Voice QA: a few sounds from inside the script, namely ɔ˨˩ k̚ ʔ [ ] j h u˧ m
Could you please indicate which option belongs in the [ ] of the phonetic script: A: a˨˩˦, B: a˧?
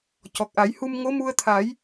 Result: A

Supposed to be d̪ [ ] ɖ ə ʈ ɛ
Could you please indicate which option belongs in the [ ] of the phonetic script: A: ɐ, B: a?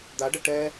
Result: B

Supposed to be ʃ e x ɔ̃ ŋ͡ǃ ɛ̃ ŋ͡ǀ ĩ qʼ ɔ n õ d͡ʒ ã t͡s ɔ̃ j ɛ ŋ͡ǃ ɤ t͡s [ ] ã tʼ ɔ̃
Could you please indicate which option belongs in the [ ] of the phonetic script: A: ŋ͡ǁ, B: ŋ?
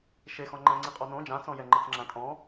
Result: A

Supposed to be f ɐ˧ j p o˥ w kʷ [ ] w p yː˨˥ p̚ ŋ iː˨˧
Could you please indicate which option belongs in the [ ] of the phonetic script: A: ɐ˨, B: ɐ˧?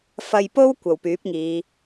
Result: A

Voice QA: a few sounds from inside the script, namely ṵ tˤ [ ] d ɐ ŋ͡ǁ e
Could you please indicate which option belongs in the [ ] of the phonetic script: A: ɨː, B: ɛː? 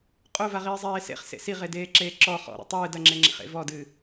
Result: A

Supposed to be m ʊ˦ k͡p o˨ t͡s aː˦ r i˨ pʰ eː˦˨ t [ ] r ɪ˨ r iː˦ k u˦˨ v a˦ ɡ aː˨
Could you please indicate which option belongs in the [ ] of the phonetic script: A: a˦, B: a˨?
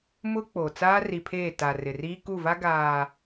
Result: B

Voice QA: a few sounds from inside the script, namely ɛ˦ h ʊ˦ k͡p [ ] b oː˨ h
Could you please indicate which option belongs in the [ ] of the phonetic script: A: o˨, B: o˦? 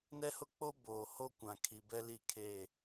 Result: B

